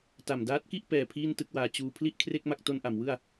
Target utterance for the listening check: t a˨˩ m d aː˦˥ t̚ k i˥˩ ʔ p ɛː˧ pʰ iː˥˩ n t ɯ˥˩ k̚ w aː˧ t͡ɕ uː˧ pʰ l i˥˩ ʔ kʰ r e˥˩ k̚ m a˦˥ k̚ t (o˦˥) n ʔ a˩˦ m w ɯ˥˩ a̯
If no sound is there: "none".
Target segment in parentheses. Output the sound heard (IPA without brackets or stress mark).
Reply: o˦˥